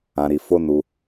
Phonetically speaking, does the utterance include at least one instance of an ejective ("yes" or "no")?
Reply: no